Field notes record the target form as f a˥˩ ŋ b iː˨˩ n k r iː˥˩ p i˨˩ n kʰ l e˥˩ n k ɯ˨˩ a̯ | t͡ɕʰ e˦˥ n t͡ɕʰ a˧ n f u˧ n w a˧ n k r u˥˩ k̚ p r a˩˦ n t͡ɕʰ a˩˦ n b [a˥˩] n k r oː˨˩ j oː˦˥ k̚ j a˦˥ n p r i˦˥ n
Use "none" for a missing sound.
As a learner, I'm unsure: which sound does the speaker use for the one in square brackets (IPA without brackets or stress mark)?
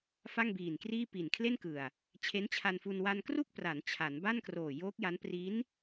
a˥˩